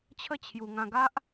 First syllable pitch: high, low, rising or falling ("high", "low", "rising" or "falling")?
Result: falling